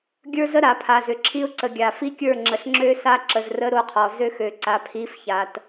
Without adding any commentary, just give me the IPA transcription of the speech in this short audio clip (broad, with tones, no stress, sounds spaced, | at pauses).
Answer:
ɡʲ ə˞˦ z ə˦ ɾ a˨ pʰ a˨ z ʏ˨ ǁʰ i˦ ʊ̯ ǀ ə˨ ɡʲ a˨ f i˦ kʲ ə˞˦˨ ŋ͡ǁ ə˨ ɬ ŋ͡ǁ ø˦ s a˦ ǁ ə˨ z r ə˦ ɾ o˦ qʰ ɔ˨ z ø˦ x ø˨ ǀ a˨ pʰ i˨˦ f ç a˨ t